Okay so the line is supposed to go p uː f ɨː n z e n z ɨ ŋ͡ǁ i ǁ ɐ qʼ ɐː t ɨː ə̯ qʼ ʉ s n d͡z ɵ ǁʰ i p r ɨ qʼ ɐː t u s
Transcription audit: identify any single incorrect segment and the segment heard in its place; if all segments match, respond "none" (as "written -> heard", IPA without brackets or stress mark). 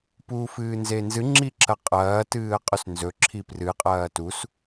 d͡z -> z